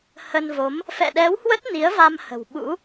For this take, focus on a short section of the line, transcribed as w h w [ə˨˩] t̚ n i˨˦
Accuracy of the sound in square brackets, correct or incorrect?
incorrect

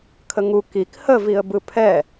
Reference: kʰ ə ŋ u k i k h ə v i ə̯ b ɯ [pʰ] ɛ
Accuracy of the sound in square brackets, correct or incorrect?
correct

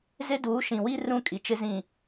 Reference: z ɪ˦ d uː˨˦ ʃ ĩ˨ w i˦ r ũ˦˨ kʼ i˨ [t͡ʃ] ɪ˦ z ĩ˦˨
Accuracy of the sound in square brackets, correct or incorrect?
correct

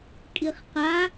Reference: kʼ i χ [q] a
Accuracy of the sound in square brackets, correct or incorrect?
correct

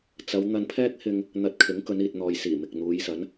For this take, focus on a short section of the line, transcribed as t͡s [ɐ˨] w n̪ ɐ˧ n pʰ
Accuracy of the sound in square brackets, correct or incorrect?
incorrect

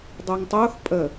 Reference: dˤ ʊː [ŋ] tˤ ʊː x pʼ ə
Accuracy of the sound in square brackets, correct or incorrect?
correct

